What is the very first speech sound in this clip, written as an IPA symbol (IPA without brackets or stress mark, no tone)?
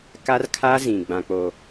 k